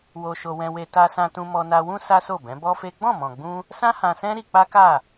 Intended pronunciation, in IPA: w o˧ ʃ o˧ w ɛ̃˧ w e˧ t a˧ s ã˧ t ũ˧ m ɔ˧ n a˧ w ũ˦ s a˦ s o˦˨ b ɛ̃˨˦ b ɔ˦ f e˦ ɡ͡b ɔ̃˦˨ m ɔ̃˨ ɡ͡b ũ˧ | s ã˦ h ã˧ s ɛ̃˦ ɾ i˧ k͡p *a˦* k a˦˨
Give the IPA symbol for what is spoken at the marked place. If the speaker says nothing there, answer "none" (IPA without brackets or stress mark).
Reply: a˦